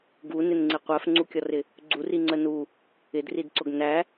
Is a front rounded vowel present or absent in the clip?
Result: absent